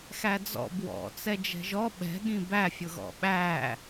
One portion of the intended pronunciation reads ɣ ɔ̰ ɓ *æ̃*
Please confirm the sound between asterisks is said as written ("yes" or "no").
no